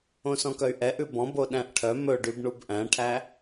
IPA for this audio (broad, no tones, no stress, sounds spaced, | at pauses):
õ s ɔ̃ k œ y̯ ʔ ɛ ʔ ʉ b ɔ̃ b o ɗ æ̃ ʔ ʈʰ œ m ɵ ɖ y b ɳ u b ʔ æ̃ ʈʰ æ